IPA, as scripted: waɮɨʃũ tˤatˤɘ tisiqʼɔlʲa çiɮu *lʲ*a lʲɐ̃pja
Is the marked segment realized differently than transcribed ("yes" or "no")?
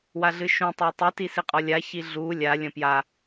no